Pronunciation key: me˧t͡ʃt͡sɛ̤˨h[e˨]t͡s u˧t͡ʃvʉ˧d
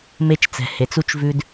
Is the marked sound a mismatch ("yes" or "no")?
no